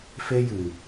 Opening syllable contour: high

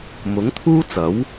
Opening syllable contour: rising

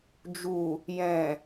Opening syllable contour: low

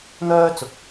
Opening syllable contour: high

